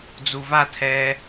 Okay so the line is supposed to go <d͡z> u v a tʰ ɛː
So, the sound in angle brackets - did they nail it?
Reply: yes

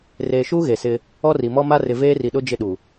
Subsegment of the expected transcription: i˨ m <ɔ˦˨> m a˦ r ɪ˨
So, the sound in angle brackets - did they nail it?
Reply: no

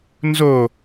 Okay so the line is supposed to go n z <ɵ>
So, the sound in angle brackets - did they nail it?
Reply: no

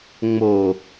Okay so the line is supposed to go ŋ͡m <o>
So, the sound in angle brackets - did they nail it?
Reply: yes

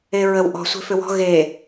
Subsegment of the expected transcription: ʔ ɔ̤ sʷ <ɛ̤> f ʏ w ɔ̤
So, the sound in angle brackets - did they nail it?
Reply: no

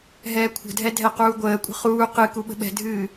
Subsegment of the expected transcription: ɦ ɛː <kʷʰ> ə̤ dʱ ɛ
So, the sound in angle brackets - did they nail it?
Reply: yes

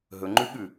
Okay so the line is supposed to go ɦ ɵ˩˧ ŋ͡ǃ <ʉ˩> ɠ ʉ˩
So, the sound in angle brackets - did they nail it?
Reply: no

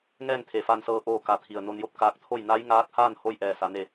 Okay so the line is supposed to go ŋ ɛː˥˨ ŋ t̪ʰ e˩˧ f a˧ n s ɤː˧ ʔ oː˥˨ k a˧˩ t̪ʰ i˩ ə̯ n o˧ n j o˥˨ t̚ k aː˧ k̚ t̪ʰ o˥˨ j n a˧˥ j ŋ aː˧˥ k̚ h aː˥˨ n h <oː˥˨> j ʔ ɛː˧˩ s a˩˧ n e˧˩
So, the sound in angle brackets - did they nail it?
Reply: no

